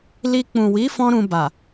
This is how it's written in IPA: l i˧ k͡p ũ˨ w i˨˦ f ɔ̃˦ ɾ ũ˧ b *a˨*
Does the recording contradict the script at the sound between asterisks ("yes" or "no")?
no